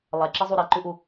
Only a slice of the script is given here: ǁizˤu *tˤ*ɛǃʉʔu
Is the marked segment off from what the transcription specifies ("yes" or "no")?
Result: yes